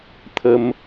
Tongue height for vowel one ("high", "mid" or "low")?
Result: mid